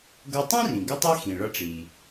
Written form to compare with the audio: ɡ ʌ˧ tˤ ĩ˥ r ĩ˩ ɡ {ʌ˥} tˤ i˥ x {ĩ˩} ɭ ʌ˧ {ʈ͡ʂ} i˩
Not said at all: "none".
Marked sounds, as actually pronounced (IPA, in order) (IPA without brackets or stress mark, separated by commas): ə˥, ĩ˩, ʈ͡ʂ